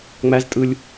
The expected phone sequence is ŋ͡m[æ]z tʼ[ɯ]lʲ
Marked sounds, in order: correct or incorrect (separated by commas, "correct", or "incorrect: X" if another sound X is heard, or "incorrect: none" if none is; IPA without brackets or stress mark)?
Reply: correct, correct